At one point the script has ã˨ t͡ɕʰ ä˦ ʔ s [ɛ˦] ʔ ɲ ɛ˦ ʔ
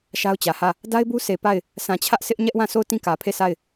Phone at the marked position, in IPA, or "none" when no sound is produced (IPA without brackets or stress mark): ɪ˦